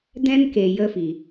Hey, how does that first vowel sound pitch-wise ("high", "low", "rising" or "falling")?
high